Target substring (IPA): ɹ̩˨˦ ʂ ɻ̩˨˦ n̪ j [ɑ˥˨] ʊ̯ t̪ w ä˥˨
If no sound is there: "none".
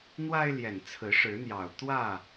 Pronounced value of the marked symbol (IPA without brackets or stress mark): ɑ˨˩